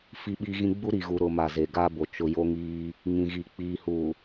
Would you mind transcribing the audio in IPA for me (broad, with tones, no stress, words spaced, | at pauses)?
fi˦ɓiː˦ɣĩ˦ ɡ͡bu˦ɾi˨ɣu˨ɾʊ˨ ma˨ze˨ɡaː˦bo˨ t͡ʃʊ˨jo˦ ŋiː˦ | ŋĩ˨ɣi˨ k͡piː˨ huː˨